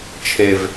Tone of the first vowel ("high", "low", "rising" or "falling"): low